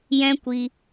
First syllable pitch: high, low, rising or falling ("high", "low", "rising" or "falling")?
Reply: high